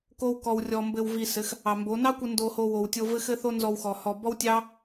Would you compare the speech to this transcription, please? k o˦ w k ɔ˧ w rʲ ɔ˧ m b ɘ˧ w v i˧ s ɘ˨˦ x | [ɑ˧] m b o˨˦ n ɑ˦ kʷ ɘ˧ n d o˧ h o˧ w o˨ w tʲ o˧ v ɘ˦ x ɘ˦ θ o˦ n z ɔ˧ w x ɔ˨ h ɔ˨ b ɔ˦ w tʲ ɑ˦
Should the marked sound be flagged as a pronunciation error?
yes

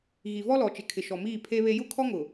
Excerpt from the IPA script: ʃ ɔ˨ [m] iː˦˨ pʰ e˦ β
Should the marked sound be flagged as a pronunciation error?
no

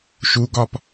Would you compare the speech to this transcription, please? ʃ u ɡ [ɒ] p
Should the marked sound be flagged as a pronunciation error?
no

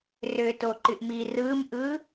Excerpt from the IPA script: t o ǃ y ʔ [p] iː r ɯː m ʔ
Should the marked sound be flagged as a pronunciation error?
yes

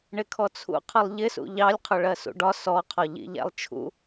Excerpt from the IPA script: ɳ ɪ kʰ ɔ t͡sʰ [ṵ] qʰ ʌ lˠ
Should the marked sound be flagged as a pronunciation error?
no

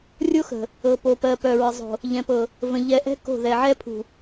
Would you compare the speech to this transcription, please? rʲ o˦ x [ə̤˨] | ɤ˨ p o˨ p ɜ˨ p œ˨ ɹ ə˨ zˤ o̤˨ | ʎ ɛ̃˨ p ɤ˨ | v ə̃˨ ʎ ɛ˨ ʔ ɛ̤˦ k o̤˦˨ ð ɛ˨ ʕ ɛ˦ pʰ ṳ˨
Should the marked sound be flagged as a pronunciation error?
no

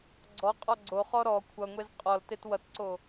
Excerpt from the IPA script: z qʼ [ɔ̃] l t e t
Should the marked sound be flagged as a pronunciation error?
yes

